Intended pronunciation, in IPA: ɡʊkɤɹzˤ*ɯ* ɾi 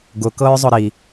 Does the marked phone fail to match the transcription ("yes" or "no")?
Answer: yes